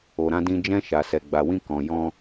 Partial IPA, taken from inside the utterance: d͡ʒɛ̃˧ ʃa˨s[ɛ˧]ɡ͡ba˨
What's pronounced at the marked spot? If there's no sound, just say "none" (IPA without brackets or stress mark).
ɛ˨